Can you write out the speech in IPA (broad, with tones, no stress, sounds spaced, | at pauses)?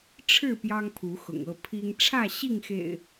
ʈ͡ʂʰ ɻ̩˥˨ p j ɑ˦ ŋ pʰ u˨˦ x ʊ̰˨˩ ŋ ɤ˥˨ pʰ i˦ ŋ ʈ͡ʂʰ ä˥˨ ɕ i˥˨ ŋ x ḛ˨˩ ɪ̯